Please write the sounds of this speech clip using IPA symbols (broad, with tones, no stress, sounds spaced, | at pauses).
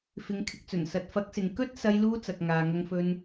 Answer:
f ɪ˨ ŋ kʰ ɪ˨ k̚ t͡s ɵ˨˩ n s ɐ˨ t̚ f ɐ˨˥ k̚ s ɪ˨ ŋ k ɵ˥ t̚ s ɐ˧ j l uː˧ t͡s ɐ˨ k̚ ŋ aː˨ ŋ ɐ˧ ŋ f ɵ˧ n